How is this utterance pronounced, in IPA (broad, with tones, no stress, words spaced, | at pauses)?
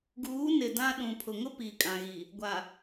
ɡuː˨˦nɪ˨ dã˦ ɗũ˨pʰʊ˨ŋʊ˦ piː˨kʼã˨ɣiː˨ | ɡʷa˨